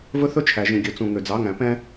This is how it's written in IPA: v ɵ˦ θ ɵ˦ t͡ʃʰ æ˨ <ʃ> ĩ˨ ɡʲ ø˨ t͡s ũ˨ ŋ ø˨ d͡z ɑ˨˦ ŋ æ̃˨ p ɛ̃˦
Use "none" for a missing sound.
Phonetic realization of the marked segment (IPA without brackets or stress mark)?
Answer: ʒ